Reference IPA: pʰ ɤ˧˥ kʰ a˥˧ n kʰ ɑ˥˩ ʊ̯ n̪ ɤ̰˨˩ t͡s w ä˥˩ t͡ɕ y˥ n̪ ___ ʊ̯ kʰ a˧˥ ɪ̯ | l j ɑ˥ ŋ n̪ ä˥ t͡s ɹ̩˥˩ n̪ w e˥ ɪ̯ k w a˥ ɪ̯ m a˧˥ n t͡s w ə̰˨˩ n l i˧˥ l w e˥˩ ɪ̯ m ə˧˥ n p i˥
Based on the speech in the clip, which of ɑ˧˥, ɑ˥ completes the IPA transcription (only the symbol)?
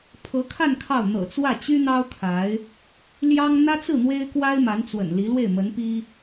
ɑ˥